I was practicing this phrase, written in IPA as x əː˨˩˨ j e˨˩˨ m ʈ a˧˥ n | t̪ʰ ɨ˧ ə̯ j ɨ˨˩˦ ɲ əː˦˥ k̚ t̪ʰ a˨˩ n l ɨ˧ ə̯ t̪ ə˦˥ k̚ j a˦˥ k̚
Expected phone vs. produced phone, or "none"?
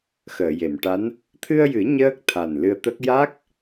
none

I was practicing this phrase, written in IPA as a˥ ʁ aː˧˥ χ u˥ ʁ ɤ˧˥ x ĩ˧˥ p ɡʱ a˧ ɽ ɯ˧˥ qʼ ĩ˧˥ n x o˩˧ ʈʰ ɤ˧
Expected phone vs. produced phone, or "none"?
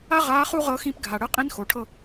none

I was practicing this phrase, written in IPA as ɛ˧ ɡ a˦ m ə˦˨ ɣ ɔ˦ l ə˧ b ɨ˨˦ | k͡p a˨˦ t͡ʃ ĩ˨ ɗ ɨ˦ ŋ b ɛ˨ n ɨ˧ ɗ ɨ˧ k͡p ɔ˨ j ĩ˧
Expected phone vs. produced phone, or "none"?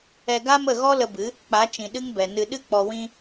j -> w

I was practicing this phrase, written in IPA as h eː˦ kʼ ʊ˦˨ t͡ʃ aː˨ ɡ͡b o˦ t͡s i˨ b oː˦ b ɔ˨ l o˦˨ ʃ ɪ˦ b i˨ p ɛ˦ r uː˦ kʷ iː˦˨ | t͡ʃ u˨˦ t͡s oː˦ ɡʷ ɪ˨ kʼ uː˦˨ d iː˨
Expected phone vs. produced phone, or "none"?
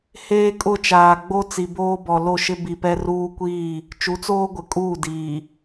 none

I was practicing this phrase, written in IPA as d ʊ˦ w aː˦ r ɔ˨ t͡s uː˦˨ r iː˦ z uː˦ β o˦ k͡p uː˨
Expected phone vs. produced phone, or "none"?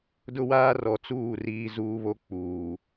none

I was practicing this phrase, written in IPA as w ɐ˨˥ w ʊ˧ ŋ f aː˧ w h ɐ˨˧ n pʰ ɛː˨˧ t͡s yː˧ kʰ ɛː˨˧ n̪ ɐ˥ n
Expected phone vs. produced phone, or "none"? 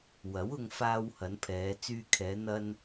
none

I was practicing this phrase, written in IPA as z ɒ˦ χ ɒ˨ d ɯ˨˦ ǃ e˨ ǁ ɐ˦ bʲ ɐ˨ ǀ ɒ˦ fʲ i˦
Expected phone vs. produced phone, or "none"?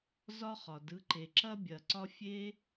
i˦ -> e˦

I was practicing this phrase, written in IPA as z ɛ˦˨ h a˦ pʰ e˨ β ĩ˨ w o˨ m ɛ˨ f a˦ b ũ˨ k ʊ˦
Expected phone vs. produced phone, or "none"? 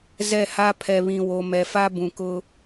e˨ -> ɛ˨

